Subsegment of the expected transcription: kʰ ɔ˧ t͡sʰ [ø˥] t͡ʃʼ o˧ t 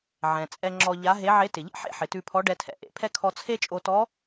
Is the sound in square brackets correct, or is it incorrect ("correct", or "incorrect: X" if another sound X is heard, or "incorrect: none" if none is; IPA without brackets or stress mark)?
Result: incorrect: e˥